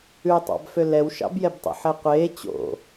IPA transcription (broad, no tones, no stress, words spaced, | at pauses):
ʉtˤɑ̰bfø lɛwʃɑ̰bjɛbtˤo̰ ħɛqʷeː t͡ɕo̰